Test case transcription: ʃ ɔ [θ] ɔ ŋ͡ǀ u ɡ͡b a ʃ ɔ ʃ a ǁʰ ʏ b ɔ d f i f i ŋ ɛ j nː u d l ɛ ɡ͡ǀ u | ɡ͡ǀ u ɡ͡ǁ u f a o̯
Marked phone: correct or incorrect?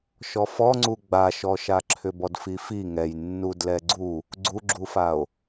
incorrect